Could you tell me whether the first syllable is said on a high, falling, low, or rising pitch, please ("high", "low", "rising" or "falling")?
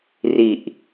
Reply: low